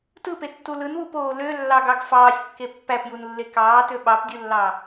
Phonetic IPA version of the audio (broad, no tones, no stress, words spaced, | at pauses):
tɯpetːu lɯnwupoː lølːɑɡɑɡ fɑːsʲkːe pːæpjunlːe kɑːtø ɓɑpdʲɯlːɑ